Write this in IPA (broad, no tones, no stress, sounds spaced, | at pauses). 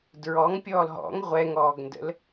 d ɹ ɔ ŋ pʲ ɔː l ɦ ɔ̰ ŋ ʁʷ ɛ ŋ ɔː ɡ n d ə̰ l